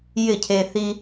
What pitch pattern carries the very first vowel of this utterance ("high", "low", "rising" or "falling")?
falling